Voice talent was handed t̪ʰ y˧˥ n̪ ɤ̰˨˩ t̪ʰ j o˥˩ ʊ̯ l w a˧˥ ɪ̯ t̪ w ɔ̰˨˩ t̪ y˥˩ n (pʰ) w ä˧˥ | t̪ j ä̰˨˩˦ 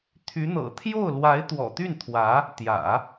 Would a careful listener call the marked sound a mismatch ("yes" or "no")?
yes